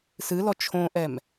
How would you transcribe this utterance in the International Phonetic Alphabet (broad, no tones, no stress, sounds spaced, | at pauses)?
s ɨ l ɔ t͡ʃʰ õ ʔ ɛ m